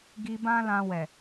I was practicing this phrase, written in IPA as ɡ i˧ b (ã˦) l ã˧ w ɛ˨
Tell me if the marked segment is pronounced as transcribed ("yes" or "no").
yes